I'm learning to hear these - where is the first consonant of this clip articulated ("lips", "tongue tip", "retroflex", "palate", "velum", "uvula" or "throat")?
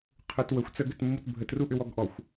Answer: uvula